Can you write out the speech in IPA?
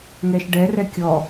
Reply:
ŋ ɛ ʃ ɖ ɛ r ɛ kʲ ɔ

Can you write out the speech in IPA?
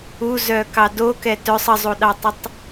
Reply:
u z œ k ɑ d o k ɛ t œ sˤ ə zˤ u ɗ ɑ tˤ ə tˤ

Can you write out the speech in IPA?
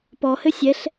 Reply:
p ɔ h ɘ sʲ ɛ ɬ

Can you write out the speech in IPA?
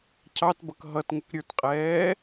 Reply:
cʰ ɑ t b ʌ k ɦ ʌ t ŋ ə k ɾʲ ə˞ t qʼ ɛː

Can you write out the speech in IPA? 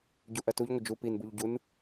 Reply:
ɟ u ʔ ɜ t u ʎ ŋʷ ə d͡ʒ u p i n b u ʎ ɟ u n

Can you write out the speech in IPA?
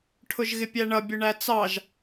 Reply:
ʈʰ ʊ ʒ ɣ ɪ pʲ æ ɳ ʌ bʲ ʊ ɳ æ t͡s ɑ ʒ

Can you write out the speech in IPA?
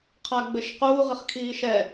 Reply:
qʰ a ɡ͡b ɘ ʃ q uː ʁ ɨ χ kʰ iː ʃ ɛ

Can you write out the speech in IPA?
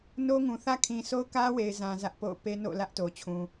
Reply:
n o˦ ŋ ũ˨ θ ä˦ kʰ ĩ˨ sʰ o˦ ʊ̯ k ä˦ w e˨ ɪ̯ z ã˨ z ä˦ ʔ p o̰˦˨ ʊ̯ p e˦ n o̰˦˨ l ä˦ ʔ t o˨ t͡ɕʰ ũ˨

